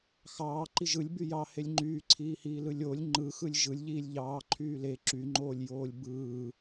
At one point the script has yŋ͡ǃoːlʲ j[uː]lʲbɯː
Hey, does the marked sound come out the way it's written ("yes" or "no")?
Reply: no